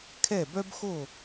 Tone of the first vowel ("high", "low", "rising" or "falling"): falling